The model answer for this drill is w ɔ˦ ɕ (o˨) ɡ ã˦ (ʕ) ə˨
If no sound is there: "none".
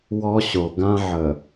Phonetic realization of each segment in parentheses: o˨, ʕ

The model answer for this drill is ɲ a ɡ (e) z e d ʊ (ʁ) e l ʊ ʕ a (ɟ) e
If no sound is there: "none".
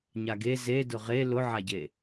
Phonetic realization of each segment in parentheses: e, ʁ, ɟ

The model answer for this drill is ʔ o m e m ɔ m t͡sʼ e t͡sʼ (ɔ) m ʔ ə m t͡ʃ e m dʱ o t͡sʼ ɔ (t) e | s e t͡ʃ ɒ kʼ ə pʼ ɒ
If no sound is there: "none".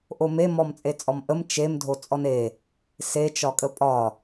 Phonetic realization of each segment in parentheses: ɔ, n

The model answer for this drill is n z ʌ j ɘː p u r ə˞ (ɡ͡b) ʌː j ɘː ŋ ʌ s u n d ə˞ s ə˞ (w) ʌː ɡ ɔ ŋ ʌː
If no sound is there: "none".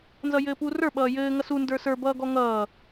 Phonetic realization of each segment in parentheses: ɓ, b

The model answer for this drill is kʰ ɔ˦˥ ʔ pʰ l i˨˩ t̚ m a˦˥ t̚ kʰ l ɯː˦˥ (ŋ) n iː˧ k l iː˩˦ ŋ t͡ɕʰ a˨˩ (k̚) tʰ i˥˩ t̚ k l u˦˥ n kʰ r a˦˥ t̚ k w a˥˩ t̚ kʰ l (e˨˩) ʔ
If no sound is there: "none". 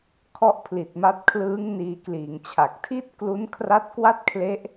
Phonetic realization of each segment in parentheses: ŋ, k̚, e˦˥

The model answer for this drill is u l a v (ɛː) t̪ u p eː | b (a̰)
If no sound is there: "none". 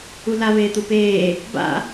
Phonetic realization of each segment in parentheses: eː, a̰

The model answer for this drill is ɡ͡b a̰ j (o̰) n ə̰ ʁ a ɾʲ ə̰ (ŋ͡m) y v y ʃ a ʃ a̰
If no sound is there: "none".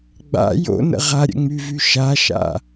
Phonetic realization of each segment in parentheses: o̰, ŋ͡m

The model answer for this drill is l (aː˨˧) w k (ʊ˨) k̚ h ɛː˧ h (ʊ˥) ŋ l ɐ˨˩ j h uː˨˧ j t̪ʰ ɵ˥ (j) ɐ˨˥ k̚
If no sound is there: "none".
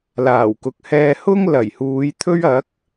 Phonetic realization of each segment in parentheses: aː˨˩, ʊ˨, ʊ˥, ɥ

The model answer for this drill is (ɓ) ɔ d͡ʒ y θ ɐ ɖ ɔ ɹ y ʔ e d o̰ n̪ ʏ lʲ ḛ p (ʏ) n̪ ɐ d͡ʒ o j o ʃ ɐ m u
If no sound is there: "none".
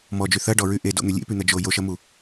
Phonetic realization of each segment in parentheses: m, y

